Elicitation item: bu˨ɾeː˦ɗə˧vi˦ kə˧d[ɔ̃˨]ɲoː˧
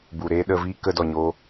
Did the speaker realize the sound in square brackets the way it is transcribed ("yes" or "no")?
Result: no